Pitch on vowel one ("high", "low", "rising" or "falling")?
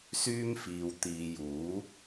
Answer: high